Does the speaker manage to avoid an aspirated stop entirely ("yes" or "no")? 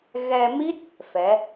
yes